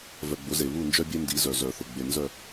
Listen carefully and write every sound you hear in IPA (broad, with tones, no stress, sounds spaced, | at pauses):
v œ˨ ɡ͡b ʊ˨˦ z e˨ β u˦˨ n d͡ʒ œ˦ bʲ e˦ n d i˨˦ z œ˨ z œ˨ θ ʊ˨ ɡ͡b e˨ n z œ˦˨